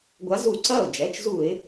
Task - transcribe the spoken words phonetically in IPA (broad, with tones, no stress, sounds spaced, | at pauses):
ɡʷ a˨˦ z u˧˩˧ ǀ ɐ˥˩ ʊ̯ d͡ʒ ɛ˩˧˩ t͡ʃ z u˧˩˧ ɪ̯